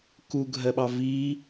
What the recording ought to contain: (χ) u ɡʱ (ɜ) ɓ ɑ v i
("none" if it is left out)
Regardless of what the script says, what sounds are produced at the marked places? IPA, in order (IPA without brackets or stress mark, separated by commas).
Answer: k, ɜ